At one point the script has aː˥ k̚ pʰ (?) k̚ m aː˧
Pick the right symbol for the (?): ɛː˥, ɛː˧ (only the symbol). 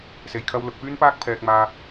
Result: ɛː˧